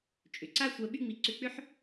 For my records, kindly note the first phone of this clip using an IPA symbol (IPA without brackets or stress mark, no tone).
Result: t͡ʃʼ